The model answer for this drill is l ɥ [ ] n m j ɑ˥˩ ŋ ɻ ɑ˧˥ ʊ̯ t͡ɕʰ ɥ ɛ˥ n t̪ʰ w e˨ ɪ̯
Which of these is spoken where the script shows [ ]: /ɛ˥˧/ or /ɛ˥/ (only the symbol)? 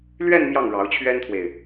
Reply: ɛ˥˧